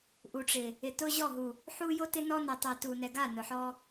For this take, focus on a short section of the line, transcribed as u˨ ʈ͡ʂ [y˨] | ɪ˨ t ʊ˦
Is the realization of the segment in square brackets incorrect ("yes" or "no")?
yes